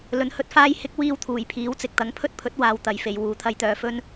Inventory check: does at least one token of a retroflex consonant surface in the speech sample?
no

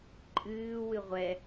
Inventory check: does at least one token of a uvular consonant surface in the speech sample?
yes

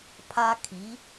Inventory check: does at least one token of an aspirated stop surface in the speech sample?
yes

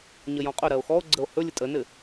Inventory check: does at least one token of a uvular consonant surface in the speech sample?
yes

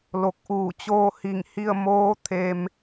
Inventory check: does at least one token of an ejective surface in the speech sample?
no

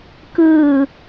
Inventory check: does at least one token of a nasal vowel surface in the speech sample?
no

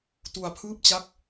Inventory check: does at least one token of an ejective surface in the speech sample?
no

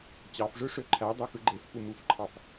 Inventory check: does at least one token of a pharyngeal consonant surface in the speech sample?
no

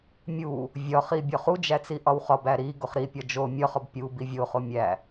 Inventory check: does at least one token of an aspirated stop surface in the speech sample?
no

